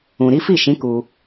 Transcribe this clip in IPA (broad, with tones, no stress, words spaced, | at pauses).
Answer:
ũ˨ɾi˨˦fi˦˨ʃĩ˨˦ ku˧